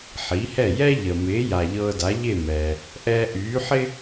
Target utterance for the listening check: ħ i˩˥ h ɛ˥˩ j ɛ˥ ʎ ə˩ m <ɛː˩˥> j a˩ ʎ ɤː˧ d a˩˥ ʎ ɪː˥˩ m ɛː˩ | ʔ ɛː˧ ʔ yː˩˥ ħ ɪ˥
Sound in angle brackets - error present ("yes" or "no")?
yes